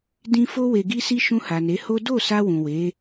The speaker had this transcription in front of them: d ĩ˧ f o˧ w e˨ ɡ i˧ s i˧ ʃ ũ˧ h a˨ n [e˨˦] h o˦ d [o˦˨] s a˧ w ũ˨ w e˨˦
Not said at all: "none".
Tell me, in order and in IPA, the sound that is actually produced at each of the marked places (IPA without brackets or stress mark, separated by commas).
e˨˦, o˦˨